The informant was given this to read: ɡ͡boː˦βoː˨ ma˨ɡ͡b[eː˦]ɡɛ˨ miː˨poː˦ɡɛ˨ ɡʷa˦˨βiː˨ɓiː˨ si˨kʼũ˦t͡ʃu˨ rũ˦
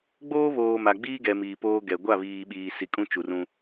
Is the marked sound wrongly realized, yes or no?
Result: yes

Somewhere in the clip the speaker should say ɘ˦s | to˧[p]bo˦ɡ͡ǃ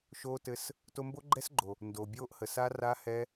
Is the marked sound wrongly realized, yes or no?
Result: yes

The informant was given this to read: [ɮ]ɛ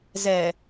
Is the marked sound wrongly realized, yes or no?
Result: yes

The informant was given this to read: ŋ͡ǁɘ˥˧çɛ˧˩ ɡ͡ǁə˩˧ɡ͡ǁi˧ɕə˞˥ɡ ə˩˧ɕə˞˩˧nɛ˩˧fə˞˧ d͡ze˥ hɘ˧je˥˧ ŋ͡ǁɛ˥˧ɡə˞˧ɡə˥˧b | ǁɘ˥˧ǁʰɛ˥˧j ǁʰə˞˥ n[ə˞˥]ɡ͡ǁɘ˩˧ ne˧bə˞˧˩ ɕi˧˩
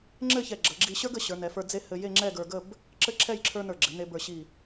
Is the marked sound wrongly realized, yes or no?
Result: yes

